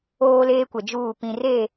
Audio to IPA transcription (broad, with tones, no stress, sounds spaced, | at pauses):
oː˦ l eː˦ kʷ ɛ˨ d͡ʒ uː˦˨ p ĩ˨ r e˦˨